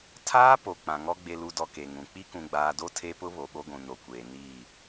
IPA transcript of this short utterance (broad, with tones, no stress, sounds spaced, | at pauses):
tʰ aː˦ p o˨ k͡p ã˨ ŋ ɔ˦ ɡ͡b e˨ l u˨ d ɔ˨ k e˨ ŋ ũ˨ k͡p i˦ k ũ˨ ɡ͡b aː˨ d o˦ tʰ e˦ p ʊ˦ β o˨ ɓ o˦ ɡʷ ũ˨ n o˨ kʷ eː˨ n iː˦˨